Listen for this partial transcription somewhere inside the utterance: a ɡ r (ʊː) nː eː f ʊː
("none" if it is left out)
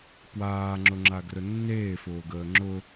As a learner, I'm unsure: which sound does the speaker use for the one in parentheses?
ʊ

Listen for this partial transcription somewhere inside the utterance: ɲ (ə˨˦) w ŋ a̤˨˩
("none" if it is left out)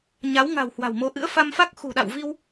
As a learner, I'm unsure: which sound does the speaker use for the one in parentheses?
a˨˦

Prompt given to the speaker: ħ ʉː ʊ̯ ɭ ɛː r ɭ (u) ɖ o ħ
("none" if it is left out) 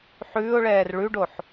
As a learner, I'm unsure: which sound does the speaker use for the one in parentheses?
ʉ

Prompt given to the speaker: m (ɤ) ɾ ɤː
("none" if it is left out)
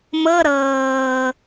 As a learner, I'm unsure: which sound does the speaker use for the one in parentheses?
ɤ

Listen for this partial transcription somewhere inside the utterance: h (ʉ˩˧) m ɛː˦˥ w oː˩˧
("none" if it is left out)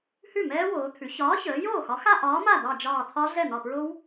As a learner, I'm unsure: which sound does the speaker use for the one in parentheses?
ʉ˥˩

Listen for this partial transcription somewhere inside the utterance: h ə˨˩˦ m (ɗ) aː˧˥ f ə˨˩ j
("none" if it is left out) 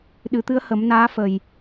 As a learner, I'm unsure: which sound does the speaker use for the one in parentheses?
n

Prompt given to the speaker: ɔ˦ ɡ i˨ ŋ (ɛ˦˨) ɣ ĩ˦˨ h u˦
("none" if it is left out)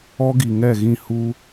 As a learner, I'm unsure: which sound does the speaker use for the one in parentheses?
ɛ˦˨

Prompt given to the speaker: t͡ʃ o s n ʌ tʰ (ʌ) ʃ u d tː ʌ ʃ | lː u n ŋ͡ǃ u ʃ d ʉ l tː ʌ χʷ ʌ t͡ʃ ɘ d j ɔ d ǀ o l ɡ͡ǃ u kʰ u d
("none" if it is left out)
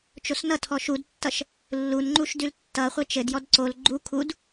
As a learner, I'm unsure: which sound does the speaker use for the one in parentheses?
ɔ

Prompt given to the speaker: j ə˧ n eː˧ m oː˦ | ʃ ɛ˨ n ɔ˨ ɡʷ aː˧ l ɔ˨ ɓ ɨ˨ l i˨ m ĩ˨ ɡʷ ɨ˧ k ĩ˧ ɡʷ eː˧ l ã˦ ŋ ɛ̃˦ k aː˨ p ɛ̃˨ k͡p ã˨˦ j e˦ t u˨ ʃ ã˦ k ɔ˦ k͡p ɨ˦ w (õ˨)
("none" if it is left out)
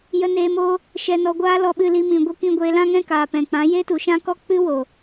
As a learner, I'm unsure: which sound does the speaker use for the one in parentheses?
o˨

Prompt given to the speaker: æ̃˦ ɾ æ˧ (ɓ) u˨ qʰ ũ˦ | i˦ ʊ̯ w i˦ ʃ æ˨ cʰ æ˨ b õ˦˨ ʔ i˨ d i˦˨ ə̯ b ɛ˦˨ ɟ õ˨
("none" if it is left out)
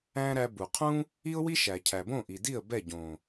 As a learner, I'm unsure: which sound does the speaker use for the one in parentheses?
b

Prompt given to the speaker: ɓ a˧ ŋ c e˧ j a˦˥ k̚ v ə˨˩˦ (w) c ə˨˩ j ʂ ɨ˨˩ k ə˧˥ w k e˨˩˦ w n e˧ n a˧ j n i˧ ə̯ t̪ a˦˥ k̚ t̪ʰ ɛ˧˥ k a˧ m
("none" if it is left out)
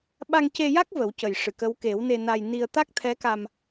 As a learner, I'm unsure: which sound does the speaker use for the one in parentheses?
w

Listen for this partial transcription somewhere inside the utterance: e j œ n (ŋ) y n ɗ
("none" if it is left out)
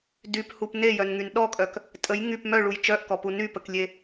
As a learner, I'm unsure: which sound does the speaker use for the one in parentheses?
ŋ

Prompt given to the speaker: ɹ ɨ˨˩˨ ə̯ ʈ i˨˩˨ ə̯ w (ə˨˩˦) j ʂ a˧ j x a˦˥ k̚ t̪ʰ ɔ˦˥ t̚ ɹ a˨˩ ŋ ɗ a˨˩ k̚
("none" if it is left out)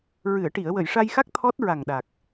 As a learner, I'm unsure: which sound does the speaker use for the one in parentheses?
ə˨˩˨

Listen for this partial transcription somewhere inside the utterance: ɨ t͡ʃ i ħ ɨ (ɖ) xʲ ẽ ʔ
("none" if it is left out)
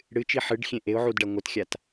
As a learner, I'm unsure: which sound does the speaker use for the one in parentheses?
ɖ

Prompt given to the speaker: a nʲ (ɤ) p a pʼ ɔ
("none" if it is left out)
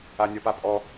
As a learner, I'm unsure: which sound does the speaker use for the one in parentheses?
ɔ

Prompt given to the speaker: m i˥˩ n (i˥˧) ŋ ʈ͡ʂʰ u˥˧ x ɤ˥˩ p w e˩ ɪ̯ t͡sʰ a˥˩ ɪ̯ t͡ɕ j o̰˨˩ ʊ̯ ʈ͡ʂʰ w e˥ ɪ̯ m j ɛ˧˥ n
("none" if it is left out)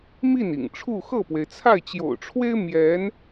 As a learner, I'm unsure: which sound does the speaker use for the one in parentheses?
ḭ˨˩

